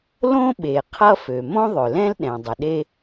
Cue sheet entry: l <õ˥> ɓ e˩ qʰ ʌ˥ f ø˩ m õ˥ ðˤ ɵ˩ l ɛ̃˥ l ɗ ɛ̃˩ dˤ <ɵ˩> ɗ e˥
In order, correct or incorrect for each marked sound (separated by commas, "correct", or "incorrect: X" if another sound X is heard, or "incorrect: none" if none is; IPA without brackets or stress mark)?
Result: correct, incorrect: ə˩